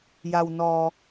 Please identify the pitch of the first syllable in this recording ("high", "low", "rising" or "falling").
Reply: low